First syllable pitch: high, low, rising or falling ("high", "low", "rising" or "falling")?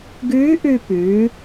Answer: rising